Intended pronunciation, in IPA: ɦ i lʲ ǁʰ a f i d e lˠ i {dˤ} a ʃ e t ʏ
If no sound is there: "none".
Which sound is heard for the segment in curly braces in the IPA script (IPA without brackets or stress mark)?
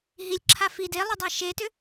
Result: dˤ